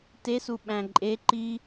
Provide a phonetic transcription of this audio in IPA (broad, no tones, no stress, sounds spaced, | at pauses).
t e s u ɓ æ̃ ǃʼ e ǃ i